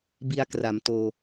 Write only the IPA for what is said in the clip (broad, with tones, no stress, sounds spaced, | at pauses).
b i˧ a̯ k r a˩˦ m t oː˧